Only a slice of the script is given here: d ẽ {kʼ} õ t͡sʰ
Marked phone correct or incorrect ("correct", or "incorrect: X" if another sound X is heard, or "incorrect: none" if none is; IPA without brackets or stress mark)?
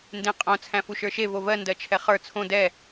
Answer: incorrect: qʼ